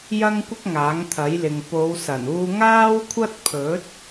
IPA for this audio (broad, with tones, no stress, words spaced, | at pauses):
jɐ˥ŋkʷɪ˥k̚ ŋaː˨˥ŋt̪ʰɐ˨˥jlɪ˨ŋ po˨˧wsɐ˨˩n uː˧ŋaː˥wkʷʰɐ˥t̚pʰɵ˨˥t̚